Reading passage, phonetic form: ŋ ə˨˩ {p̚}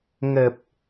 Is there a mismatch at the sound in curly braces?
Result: no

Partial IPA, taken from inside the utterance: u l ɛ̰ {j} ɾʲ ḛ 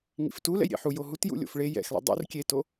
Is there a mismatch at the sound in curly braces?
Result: no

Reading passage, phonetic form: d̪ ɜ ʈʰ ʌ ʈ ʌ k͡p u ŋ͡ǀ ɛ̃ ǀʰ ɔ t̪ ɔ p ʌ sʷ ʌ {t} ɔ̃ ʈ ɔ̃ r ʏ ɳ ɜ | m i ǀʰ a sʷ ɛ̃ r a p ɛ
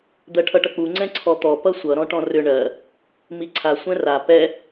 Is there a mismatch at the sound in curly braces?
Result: yes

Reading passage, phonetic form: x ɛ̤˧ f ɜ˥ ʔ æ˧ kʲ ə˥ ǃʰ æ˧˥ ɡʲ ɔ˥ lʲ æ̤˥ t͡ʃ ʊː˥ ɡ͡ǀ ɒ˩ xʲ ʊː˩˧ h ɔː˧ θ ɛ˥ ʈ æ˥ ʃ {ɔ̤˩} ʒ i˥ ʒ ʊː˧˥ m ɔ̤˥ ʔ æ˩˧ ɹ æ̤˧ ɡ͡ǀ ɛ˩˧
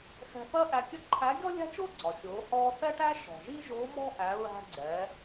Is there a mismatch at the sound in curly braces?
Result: no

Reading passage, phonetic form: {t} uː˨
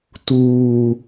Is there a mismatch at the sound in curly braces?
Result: no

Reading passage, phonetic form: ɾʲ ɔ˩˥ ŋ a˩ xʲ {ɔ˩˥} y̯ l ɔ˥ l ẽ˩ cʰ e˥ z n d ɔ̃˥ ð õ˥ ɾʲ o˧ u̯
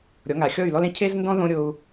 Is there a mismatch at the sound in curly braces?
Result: yes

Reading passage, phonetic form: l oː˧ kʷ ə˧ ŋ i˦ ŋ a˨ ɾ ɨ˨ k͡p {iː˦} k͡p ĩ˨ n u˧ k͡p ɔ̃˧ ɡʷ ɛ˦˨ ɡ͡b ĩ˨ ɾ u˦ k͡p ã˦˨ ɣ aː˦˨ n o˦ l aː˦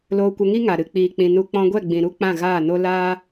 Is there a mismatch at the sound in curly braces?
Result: yes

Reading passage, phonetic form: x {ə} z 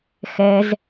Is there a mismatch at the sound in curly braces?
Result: yes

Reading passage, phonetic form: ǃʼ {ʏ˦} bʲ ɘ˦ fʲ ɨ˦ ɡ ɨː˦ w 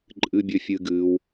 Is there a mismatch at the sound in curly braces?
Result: yes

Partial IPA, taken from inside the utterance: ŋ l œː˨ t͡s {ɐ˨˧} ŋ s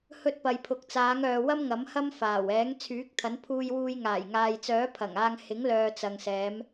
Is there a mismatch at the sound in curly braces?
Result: yes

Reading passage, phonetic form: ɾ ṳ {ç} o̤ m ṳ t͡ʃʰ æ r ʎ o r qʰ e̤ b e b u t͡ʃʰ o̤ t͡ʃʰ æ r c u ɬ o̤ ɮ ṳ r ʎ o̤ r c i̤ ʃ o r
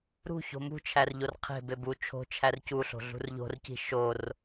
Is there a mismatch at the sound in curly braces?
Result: no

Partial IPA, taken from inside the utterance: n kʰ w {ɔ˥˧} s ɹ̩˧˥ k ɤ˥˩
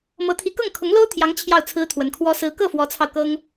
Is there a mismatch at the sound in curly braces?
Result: yes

